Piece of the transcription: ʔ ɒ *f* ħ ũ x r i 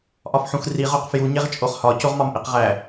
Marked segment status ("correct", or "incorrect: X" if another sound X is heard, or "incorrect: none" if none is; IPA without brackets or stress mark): correct